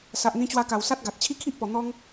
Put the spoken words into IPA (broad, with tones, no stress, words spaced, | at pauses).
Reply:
sa˨ʔn̪ĩ˧t͡ɕwa˧ka˨˩w sa˦t̚ɡa˨t̚ t͡ɕʰi˦kʰi˦ʔpɔ˨˩ n̪ɔ˧ŋ